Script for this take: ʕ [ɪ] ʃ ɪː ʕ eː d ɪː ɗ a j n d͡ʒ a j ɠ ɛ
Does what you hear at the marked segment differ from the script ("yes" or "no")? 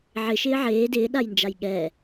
no